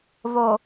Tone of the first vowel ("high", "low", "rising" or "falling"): low